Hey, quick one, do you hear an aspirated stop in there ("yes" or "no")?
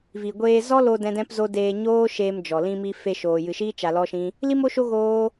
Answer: no